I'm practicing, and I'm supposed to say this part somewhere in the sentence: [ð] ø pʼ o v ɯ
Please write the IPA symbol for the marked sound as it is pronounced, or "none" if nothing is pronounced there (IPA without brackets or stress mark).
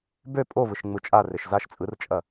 b